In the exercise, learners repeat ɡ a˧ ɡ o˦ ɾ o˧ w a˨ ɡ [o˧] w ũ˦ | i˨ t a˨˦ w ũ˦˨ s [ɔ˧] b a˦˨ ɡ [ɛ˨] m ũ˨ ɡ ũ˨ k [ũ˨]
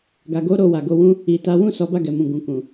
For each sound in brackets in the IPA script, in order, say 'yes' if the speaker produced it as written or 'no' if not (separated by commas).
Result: yes, no, yes, yes